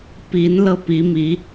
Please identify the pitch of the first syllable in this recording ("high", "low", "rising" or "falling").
rising